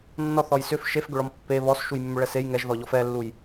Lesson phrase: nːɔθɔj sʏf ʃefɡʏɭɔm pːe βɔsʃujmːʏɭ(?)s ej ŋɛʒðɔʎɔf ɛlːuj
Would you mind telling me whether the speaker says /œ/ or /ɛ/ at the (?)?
ɛ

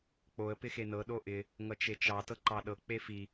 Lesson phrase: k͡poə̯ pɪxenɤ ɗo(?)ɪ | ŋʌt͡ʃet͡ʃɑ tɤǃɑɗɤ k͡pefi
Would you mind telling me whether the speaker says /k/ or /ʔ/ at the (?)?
ʔ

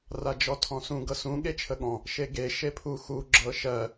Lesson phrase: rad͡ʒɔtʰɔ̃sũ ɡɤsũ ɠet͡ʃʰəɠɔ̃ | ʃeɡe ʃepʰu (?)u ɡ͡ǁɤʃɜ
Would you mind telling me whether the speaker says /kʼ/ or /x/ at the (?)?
x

